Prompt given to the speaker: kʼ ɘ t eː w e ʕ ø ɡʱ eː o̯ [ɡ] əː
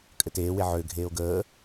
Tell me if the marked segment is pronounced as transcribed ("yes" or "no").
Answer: yes